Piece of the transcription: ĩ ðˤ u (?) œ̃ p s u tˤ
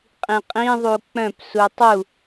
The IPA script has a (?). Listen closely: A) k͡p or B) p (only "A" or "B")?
A